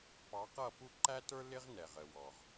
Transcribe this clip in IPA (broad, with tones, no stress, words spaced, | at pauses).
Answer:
pɑ˨˦qʌ˦˨pu˦ ǃæ˦tə˞˦ lɪ˦ʁnɛ˨ ʁə˨wɔ˨ʁ